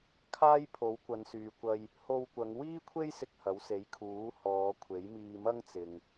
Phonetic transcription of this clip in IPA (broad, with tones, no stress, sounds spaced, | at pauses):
kʰ aː˥ j pʰ o˨˥ w kʷ ɐ˨˧ n s yː˨ kʷ ɐ˧ j | h o˧ w kʷ ɐ˨˧ ŋ w iː˥ kʷʰ e˥ j s ɪ˧ k̚ h ɐ˨˥ w s e˨˥ j kʰ uː˨˥ h ɔː˨˧ kʷʰ e˨˥ j m iː˧ m ɐ˥ ŋ t͡s ɪ˨ ŋ